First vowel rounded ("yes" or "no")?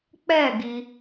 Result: no